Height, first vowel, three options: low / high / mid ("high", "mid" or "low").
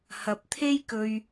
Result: low